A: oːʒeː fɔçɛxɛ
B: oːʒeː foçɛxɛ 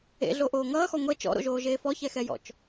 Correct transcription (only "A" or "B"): A